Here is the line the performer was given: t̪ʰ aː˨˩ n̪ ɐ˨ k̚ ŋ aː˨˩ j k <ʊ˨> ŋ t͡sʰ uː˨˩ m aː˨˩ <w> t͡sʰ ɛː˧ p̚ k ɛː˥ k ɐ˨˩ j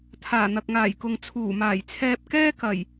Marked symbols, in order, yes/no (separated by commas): yes, no